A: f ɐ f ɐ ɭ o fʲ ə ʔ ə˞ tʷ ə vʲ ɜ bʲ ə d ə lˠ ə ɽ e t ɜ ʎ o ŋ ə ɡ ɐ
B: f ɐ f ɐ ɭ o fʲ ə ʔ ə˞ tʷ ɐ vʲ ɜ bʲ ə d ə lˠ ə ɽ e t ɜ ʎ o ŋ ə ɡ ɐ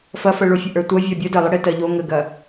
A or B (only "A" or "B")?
B